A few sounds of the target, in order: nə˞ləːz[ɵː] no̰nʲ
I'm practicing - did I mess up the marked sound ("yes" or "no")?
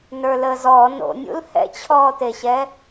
yes